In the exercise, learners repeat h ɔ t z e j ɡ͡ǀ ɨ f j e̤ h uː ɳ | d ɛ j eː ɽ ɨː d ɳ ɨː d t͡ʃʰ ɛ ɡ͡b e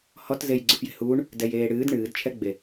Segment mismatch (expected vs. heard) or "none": none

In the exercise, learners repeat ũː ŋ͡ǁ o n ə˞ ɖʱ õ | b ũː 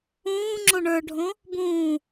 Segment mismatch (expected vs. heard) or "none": n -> ɳ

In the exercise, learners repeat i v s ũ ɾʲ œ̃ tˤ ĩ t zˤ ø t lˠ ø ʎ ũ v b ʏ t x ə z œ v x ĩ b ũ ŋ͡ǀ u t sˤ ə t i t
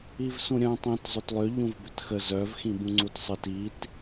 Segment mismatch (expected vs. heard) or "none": none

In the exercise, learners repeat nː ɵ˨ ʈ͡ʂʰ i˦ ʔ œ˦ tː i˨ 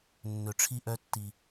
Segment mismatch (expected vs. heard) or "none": none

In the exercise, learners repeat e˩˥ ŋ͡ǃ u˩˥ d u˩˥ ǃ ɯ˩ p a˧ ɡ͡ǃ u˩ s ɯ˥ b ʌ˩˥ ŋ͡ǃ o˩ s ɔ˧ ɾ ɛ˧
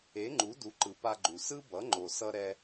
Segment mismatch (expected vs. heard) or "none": ɔ˧ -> ʌ˧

